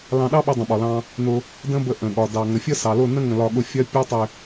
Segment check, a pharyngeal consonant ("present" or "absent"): absent